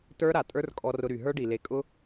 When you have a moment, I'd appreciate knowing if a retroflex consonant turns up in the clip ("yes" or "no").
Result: yes